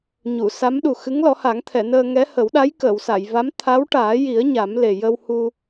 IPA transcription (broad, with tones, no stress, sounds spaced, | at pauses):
ɲ u˨˩˨ s a˧˥ m ɗ u˨˩ x ɨ˧˥ ŋ l ɔ˨˩˦ h a˨˩˦ ŋ t̪ʰ ɛ˨˩˨ n əː˧ ŋ ɛ˧˥ h ə˨˩˦ w ɗ a˧˥ j k əː˨˩˨ w s a˨˩˨ j v a˧˥ m t̪ʰ a˧˥ w ʈ aː˨˩˦ j i˨˩˦ ə̯ ɲ a˨˩˦ m l e˨˩ j ə˧ w h u˧